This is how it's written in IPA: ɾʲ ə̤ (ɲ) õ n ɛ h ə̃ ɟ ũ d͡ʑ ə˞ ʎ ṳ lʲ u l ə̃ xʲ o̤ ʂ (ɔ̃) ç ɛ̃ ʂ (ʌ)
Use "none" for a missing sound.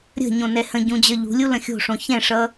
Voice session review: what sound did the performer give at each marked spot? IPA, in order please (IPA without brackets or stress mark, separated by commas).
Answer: ɲ, õ, ʌ